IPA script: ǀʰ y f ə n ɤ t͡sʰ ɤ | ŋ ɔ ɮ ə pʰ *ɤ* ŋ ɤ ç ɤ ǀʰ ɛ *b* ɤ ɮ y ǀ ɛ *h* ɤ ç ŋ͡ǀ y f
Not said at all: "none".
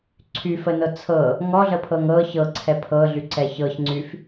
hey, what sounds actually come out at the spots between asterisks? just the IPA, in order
ɤ, pʰ, ç

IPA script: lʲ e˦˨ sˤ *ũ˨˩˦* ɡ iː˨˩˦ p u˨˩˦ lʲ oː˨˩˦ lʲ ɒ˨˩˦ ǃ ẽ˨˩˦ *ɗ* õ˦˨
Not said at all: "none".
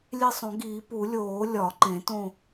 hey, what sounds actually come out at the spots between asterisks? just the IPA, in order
õ˨˩˦, t

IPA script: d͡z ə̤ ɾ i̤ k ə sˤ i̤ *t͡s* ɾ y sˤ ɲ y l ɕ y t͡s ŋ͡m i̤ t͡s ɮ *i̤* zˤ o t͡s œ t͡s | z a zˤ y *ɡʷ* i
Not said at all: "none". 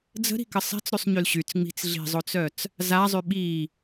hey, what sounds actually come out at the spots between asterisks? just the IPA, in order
t͡s, i̤, ɓ

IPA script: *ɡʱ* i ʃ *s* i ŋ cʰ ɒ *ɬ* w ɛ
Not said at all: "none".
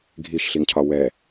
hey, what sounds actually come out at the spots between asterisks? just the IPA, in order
ɡʱ, ɬ, none

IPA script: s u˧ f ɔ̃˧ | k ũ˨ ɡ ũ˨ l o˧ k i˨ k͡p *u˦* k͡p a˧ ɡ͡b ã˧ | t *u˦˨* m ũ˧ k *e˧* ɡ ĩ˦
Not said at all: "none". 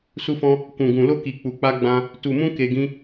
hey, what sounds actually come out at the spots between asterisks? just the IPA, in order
u˨, u˨, e˧

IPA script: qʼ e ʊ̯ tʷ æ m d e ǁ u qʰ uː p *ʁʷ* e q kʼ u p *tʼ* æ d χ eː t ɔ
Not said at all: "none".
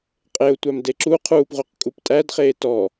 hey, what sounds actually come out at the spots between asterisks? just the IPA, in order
ʁʷ, tʼ

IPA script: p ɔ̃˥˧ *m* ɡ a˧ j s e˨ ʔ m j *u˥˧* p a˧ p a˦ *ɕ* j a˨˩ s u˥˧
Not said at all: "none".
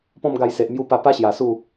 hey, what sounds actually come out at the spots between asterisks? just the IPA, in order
m, u˧, ɕ

